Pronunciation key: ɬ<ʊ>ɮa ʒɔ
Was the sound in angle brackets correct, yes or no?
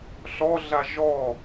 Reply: no